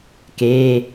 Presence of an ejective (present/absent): absent